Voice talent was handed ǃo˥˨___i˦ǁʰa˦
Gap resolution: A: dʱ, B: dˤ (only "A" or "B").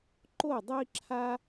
B